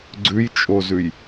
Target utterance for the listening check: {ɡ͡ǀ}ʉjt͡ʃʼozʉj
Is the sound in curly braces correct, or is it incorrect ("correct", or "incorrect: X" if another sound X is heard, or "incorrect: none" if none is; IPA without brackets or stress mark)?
correct